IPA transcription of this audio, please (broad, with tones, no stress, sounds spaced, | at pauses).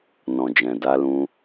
n ɔ̃˨ d͡ʒ ɛ̃˨ d a˧ l ũ˧